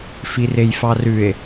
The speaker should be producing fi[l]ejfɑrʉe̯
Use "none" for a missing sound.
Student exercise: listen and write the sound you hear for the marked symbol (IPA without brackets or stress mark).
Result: r